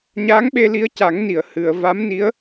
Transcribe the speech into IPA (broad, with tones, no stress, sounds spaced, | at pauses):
ɲ a˧˥ ŋ ɓ e˧ l i˧˥ ə̯ c a˨˩˦ ŋ n i˨˩˨ ə̯ h ɨ˨˩˨ ə̯ v a˧˥ m n i˧˥ ə̯